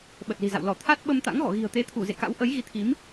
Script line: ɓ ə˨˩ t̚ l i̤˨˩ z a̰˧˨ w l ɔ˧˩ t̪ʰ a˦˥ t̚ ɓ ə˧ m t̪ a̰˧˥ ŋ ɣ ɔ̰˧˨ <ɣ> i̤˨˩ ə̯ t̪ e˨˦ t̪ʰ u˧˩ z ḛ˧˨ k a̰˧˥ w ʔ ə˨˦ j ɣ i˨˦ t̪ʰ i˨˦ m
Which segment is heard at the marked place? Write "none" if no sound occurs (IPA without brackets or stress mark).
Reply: ɣ